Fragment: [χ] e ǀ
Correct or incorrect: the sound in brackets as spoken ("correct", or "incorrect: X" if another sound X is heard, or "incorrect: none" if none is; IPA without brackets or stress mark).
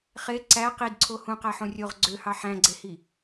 correct